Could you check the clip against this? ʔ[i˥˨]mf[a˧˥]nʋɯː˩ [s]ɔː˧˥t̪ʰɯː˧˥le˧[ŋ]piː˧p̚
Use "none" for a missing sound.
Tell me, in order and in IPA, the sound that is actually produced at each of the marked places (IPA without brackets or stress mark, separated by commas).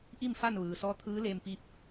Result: i˥˨, a˥˨, s, m